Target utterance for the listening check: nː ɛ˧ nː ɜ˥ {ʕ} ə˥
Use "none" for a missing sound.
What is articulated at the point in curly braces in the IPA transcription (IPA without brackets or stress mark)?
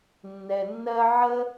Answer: ʕ